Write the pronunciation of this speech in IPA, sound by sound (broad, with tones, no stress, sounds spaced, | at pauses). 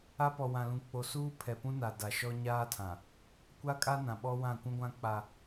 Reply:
a˦ p ɔ˨ w ã˨ l ũ˨ k͡p o˨ s uː˦ pʰ ɛ˨ p ũ˦ n a˨ d a˨ ʃ ɔ˦ ɲ aː˦ tʰ ã˨ | kʷ a˦ kʼ a˦ n ã˨ ɓ ɔ˦ w ã˦˨ kʷ ũ˦ ɡʷ ã˦ k͡p a˦